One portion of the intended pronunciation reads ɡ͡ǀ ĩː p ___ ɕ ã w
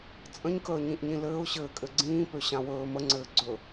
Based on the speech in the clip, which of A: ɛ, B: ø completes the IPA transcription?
B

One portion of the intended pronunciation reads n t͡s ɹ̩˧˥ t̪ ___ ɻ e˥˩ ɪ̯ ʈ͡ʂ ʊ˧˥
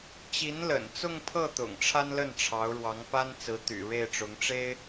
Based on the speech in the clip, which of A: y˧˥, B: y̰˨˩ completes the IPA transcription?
B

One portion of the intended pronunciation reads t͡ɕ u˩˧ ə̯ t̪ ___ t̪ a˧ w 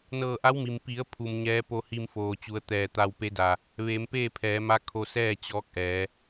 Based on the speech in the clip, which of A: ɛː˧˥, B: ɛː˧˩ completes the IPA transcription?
B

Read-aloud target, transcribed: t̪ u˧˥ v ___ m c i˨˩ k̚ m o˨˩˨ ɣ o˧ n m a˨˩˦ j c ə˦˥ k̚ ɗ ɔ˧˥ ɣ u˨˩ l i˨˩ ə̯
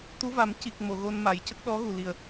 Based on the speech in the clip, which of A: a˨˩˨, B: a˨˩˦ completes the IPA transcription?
B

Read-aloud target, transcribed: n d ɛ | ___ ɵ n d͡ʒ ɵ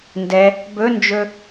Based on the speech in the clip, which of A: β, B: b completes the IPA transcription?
B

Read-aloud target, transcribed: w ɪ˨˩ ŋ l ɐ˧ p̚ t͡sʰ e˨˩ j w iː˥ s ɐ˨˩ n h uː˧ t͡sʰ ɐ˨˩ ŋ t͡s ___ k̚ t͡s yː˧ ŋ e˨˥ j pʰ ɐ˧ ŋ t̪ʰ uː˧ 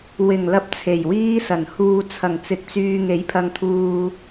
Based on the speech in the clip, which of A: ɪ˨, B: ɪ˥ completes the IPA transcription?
A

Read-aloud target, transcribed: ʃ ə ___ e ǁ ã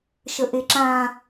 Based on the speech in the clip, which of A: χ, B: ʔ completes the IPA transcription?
B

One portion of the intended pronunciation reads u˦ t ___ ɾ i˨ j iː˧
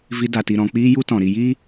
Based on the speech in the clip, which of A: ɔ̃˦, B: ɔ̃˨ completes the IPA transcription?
B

